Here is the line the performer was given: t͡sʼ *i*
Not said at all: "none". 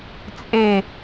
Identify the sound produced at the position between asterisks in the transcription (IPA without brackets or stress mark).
e